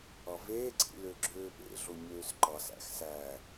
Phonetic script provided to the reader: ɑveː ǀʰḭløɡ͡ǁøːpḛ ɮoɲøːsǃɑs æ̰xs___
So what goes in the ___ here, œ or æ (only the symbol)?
æ